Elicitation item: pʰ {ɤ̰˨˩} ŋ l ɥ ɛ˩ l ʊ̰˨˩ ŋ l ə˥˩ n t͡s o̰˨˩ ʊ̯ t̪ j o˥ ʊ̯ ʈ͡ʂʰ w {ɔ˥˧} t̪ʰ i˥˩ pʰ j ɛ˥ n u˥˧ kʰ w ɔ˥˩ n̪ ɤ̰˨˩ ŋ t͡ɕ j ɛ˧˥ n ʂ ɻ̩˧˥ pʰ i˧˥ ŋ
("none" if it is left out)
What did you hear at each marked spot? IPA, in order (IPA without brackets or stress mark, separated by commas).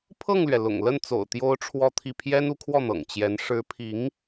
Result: ɤ˥˩, ɔ˥˧